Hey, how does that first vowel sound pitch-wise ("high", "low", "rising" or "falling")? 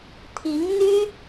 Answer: rising